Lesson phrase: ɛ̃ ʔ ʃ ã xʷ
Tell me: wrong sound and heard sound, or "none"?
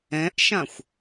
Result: none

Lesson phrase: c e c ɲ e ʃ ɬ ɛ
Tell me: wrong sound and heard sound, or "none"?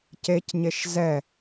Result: ɬ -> z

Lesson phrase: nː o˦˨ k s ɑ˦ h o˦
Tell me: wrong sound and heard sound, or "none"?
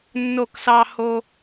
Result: none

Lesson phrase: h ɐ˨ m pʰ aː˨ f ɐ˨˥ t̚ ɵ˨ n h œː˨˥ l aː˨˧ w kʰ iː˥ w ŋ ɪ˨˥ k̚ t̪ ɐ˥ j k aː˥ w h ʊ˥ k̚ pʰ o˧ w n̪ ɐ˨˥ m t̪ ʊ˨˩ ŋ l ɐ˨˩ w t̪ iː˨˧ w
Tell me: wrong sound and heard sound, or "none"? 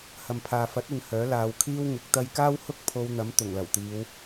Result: none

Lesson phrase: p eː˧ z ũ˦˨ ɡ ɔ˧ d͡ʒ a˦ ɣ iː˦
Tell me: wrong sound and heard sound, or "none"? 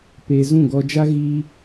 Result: none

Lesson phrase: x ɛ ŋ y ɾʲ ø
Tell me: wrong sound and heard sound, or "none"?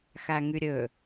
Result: ɛ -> æ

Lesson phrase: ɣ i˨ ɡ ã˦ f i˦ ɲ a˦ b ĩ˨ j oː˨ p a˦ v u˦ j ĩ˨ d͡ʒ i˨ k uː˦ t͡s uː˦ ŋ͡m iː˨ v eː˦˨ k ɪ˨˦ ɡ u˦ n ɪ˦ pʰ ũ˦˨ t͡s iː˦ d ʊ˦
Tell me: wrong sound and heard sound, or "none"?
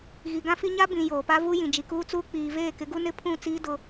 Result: ŋ͡m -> k͡p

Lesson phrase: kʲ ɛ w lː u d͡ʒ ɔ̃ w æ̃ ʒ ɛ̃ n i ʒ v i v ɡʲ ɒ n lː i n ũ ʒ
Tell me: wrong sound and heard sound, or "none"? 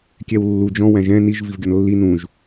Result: none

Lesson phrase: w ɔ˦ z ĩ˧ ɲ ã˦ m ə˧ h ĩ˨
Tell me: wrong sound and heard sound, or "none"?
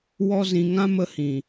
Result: ɲ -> ŋ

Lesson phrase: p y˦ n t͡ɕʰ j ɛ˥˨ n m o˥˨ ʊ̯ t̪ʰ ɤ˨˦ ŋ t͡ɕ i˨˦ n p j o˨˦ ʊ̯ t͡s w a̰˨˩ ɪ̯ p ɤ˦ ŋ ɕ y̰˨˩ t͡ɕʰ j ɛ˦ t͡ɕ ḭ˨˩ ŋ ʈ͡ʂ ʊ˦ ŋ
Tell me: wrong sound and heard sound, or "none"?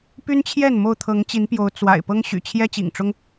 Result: none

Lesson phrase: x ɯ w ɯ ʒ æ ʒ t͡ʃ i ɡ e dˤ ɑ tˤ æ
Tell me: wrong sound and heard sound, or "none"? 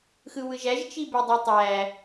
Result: ɡ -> b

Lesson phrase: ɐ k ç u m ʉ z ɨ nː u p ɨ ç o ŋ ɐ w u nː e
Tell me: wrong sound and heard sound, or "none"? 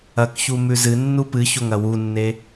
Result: none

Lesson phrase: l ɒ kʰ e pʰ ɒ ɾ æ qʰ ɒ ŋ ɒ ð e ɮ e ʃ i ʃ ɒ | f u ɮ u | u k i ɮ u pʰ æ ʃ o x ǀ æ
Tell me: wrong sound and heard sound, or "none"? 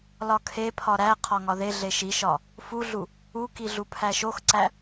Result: none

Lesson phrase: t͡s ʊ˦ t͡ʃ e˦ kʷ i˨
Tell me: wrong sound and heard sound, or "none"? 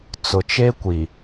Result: ʊ˦ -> ʊ˨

